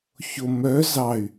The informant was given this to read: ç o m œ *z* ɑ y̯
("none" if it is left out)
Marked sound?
z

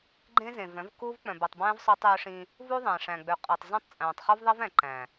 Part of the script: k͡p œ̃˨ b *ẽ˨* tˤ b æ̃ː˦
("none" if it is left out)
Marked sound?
e˨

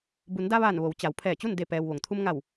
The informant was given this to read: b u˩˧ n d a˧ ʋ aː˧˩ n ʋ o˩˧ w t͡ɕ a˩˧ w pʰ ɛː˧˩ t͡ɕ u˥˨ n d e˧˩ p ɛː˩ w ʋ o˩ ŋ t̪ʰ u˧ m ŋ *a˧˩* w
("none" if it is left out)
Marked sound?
a˧˩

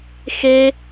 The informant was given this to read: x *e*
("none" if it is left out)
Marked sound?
e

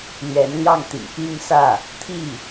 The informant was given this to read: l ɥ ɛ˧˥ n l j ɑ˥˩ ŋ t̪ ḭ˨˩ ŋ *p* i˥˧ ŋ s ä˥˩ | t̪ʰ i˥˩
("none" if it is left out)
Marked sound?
p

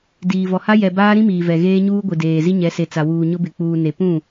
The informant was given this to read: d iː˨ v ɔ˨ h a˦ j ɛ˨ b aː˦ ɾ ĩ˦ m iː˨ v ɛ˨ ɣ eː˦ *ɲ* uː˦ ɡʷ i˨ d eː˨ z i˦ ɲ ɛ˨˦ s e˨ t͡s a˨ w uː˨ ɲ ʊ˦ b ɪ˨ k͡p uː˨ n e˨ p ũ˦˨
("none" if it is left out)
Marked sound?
ɲ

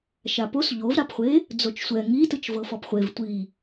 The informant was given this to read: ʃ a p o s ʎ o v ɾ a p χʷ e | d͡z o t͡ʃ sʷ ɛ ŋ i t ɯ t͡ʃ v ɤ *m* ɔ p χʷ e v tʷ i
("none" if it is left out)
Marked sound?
f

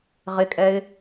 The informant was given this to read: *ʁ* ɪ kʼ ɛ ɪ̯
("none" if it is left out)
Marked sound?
ʁ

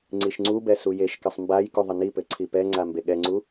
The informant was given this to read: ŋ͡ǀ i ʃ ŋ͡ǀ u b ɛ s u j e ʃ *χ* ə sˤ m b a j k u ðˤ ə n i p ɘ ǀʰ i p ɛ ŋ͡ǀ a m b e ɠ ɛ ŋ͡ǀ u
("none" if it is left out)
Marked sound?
k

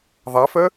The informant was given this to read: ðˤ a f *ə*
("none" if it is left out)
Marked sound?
œ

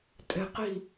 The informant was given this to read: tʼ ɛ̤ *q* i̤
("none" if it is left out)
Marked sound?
q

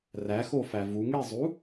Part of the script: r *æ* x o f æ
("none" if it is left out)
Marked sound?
æ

